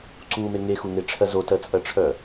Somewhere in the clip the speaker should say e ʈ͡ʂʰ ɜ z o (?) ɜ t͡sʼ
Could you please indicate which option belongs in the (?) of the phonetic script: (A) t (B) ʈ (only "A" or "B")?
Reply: A